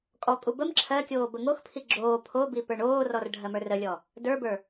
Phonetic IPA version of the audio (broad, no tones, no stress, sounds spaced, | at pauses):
kʼ ɔ kʼ u b ə m ǁʰ ɜ kʲ oː b ə ŋ o x pʰ i ɡ͡ǁ oː pʰ o b i p ə˞ ɳ oː r ɔ r ɖʱ ɜ m ə˞ r ə lʲ ɔ | d ə˞ b ə˞